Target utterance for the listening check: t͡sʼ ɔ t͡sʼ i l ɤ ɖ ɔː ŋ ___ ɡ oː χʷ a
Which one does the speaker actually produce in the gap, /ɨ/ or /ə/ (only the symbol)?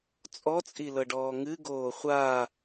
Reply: ɨ